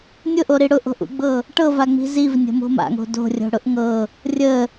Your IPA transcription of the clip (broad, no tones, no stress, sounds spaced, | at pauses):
nʲ ʊ ʔ o ɾ i ɽ ʊ ʔ o̤ ʔ ṵ ɡ͡b ɤ | ʈ ɤ v a ŋ͡m i̤ z i v nʲ ə̤ m o̤ m a̰ ŋ o̤ d o̤ rʲ o̤ ɽ ʊ ʔ ŋ ɤ | rʲ ə